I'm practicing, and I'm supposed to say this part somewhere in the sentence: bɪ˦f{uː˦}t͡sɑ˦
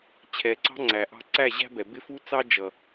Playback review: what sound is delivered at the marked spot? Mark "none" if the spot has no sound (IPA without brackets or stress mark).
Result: u˦